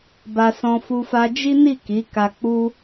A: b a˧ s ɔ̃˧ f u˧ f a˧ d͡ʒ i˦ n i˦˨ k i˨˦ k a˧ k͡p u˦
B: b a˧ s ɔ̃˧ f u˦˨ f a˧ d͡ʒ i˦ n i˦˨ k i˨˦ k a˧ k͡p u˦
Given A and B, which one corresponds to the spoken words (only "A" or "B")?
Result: A